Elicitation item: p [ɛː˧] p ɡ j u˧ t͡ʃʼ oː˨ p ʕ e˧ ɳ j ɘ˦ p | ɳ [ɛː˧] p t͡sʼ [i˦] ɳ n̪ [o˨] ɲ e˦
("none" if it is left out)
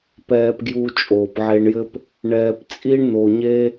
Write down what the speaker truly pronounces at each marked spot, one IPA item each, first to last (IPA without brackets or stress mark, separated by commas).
ɛː˧, ɛː˧, i˦, o˧